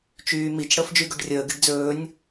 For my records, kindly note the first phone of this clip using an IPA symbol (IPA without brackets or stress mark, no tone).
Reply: t͡ʃ